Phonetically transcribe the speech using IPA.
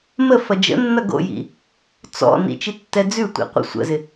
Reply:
m ə f ɐ d͡ʒ ə̰ nː ɐ ɡ o̰ j ḭ | t͡s ɔ̰ n ḭ t͡ʃ i tː ɛ d͡z ʉ tʷ ḭ qʷ ə̰ sʷ ə̰ z ɪ

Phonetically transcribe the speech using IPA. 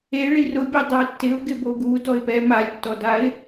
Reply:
e ɭ i r ʊ bʲ ɛ dˤ ɛ tː ɪ ʊ̯ ɡ ɪ b o ɡ u d ɔ ɪ̯ p ɛ m a lʲ tː ɔ d a ɪ̯

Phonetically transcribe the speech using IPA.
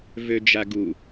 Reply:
v ø d͡ʒ a ɡ u

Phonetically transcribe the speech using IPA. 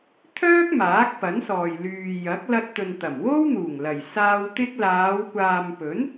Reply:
t̪ʰ œː˥ k̚ m aː˨˥ k̚ p ɐ˨˥ n s ɔː˨ j l yː˨ j ɐ˨˥ k̚ l ɐ˧ t̚ t̪ ɵ˨ n t̪ ɐ˨˩ m w o˥ w n̪ uː˨˩ ŋ l ɐ˨˩ j s aː˧ w t̪ ɪ˧ k̚ l aː˨˧ w kʷ aː˨ m p ɵ˨˥ n

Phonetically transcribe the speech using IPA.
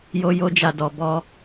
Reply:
j o˦ j o˦ d͡ʒ a˧ d ɔ˧ b ɔ˦

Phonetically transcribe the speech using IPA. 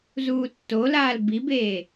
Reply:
z uː tː o l aː l b i b eː

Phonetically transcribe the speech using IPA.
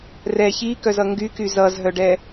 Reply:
r ɛ ç i k œ z ʌ ŋ ɡ y k y z ʌ z ɦ œ ɖ ɛ

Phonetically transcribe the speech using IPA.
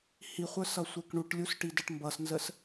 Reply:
h i χʷ ə˞ s ʌ sʷ ɛ k ɳ u ʈ lʲ u s ʈ i d ə ʈ m b ʌ s n z ə s

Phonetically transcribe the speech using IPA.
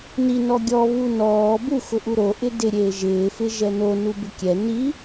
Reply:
n i n ɔ ɡʲ ɔ β u n ɔː b u x ʊ ʔ u ɾ o ʔ ɪ d ɪ ɾʲ eː ʒ ɪː f ɪ ʒ ɛ n o n u b ɪ kʲ ɛ n i

